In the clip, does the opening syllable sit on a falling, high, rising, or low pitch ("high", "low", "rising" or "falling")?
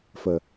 low